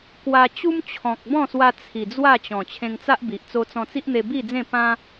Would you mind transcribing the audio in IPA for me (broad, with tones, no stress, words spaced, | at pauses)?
kwa˧ t͡ɕu˦mt͡ɕʰɔ̃˨k̚bɔ̃˥˧swa˧ t͡sʰi˨˩ d͡zwa˥˧t͡ɕɔ̃˨˩ t͡ɕʰẽ˧ŋt͡sa˦ʔbi˨ʔ t͡so˧t͡sɔ̃˧t͡si˦ʔn̪e˧ bi˥˧d͡zẽ˥˧pã˦